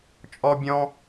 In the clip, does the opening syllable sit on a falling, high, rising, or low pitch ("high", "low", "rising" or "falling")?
high